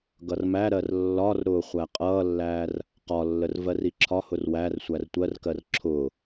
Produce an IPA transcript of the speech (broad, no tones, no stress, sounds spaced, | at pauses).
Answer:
ɡ ʌ r m æ ɾ ɜ r lː ɒ r ɾ ʊː χʷ æ qʼ ʌː lː æː r | q ɒ lː ə r v ɜ r i ǁʰ ɒ h ʊ r w æ r sʷ æ r tʷ ɜ r k ɜ r ǁʰ ʊː